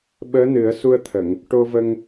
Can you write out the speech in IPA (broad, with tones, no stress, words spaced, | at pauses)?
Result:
ɓəː˧˥nɨ˨˩˦ə̯su˧ə̯t̪ʰə˨˩˨ŋ | ʈo˧və˧ŋ